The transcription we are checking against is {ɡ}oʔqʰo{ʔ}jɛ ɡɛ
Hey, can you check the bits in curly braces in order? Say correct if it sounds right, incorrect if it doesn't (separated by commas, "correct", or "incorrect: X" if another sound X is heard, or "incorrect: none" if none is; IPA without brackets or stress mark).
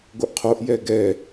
correct, correct